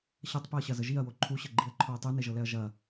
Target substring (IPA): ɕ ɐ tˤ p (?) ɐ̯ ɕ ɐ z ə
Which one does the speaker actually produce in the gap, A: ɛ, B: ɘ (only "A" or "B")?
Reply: A